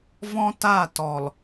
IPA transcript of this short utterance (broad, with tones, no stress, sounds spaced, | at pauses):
v ɔ̃˦ t a˦˨ t ɔ˨ l